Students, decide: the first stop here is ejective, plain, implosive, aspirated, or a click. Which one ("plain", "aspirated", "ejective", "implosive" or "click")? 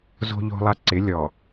click